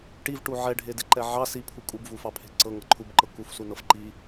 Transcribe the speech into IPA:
ʈ i v ʈ u ʕ ɛ ɖʱ e d e ǃ ɛ ʕ ɑ s i pʰ u kʼ u b v u f ɑ pʰ e̤ ǀ ɤ ŋ ɤ ǃʰ u b ǃ ɤ k u f s u n ɤ f ǃ i

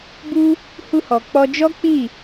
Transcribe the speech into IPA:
b u˦ | h u˧ h ɔ˨ k͡p ɔ˧ d͡ʒ ɔ˦ k͡p i˦˨

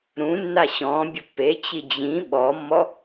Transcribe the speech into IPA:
ɾ ũ nː a ɕ ɔ̃ bʲ ʊ pː e t͡ɕ i d͡ʑ ĩ ɓ ɔ mː ɔ

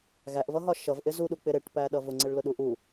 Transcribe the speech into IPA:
ɣ æ ʔ v ʌ ɦ ɒ ʃ ʌ v ʔ ɪ z u ɗ u k͡p ɪ ɾ ɪ ʈ p æ ɗ ʌ v ʊ ŋ͡ǀ ɪ ɭ l ʊ ɗ u ʔ u

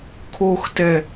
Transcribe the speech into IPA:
kʰ o x t ɛ

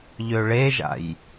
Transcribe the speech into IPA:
ʎ ø ɭ e ʒ a̰ j

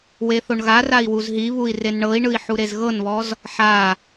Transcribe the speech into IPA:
w e θ o ɳ ɣ a r a i̯ w u z ɦ i β u i̯ r e n ɳ ɤ i̯ ɳ ɯ i̯ ħ u ɾ e z ɣ ɤ n β ɔ z | ħ a

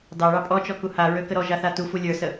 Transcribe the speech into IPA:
d ɑ ɭ ɑ pʼ ɔ t͡ʃ ɔ k u h a ɹ ø k ə ɾ ɔ ʒ a θ a t u f u lʲ ə˞ s ə

